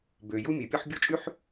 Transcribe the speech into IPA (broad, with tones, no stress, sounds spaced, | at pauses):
b ø˩ j u˦ mʲ e˩ pʲ ɔ˦ ħ bʲ o˥ t͡ʃʼ y˥ ħ